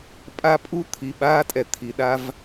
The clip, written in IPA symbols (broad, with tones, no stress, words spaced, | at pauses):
pʼa˦pʼu˦˨t̪ʰi˨ɓaː˦ tʼɛ˨t̪ʰi˨ɗa˦v